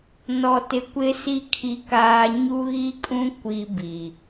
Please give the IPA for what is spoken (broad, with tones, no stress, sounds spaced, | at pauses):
n ɔ˨ t ɪ˨ kʷ ɪ˦ s i˦ kʰ i˦ k aː˦ ɲ u˦ ɣ i˦ kʼ ũ˦ kʷ i˦ b i˨